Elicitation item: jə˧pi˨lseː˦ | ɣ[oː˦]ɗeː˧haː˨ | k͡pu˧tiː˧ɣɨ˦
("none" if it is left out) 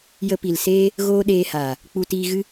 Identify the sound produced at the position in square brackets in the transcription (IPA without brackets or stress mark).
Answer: oː˦